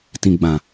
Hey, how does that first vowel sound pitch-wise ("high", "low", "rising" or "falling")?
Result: low